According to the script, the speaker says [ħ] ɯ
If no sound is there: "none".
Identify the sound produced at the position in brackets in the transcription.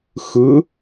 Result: x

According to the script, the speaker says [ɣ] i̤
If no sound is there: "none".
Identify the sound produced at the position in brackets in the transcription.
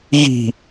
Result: ɣ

